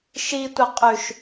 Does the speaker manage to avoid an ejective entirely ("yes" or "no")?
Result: no